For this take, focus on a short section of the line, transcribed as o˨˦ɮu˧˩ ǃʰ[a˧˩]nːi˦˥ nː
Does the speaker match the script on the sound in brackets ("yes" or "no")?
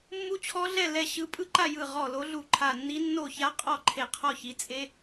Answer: yes